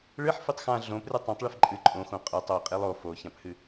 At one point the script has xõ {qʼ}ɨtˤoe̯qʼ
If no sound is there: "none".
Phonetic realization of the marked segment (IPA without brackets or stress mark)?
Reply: qʼ